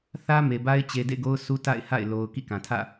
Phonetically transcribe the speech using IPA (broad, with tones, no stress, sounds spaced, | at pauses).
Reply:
θ ä˦ m e˨ b a˦ ɪ̯ t͡ɕ e˨ d ḛ˦˨ ɡ o˦ ʊ̯ sʰ u˦ t a̰˦˨ ɪ̯ h a̰˦˨ ɪ̯ l o˨ ʊ̯ k ḭ˦˨ k ã˨ tʰ ä̰˦˨